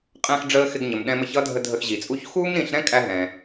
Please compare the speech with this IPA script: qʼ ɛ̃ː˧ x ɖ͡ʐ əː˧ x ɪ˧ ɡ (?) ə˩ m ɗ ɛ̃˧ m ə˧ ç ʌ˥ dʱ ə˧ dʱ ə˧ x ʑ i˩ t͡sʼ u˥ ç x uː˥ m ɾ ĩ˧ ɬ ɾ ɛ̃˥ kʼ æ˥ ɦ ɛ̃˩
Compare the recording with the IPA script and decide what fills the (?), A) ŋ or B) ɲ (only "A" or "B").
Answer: B